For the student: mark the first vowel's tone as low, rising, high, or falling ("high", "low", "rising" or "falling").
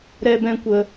high